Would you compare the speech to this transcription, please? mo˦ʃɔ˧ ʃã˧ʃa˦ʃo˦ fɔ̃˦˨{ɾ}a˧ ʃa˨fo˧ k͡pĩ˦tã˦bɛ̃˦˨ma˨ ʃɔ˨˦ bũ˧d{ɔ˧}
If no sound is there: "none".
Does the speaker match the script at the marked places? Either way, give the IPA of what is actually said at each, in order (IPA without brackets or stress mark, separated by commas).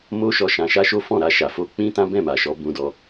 ɾ, ɔ˧